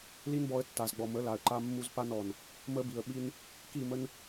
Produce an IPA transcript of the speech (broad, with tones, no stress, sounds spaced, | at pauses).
l i˦ n b ɔ˧ ə̯ tː a˨ z ɡ͡b ɔ˨ m ə˨˦ l a˨ ə̯ ǃ a˦ mː u˦ z p a˦ n ɔ˨ n | m ə˦ b i˨ ə̯ ɓ i˦ n | k i˦˨ m ə˦ n